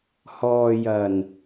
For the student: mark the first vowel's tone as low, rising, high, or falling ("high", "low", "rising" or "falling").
low